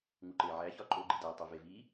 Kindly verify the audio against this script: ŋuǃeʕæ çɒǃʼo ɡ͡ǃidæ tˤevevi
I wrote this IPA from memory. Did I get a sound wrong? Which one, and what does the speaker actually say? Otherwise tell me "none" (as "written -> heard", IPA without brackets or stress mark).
none